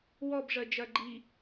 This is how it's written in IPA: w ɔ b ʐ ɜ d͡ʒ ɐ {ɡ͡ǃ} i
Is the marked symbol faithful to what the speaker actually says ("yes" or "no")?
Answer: yes